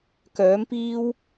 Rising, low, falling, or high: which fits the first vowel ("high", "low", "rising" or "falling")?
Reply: rising